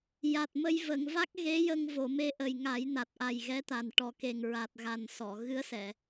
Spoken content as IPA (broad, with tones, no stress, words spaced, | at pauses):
ja˨˩t̚mə˧j və˨˩˨ŋva˦˥k̚ ɣe˧˥jə˧ŋ vo˨˩˨me˧˥ʔə˨˩j ŋa˨˩˦jna˨˩t̚ʔa˨˩j ɣɛ˧˥t̪a˨˩n ʈɔ˨˩ke˨˩ŋɹa˨˩t̚ɣa˨˩n sɔ˨˩˨ ɣɨ˧˥ə̯sɛ˨˩˨